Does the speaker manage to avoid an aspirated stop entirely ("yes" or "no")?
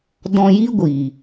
yes